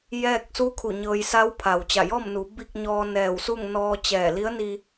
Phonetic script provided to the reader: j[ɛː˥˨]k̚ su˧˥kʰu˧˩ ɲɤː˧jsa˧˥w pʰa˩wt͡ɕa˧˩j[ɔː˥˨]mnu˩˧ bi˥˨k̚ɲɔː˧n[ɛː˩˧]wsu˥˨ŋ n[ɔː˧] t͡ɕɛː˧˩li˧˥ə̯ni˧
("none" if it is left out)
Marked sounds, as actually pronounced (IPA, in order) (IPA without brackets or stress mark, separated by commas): ɛː˥˨, ɔː˥˨, ɛː˧˩, ɔː˧